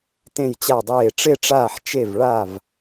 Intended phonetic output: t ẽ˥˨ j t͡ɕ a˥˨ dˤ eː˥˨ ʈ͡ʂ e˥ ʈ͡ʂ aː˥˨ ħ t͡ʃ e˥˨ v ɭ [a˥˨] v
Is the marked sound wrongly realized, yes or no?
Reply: no